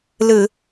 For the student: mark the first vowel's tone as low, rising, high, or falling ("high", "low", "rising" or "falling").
low